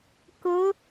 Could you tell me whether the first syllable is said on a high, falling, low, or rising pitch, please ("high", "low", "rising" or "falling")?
rising